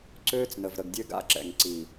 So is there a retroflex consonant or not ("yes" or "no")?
no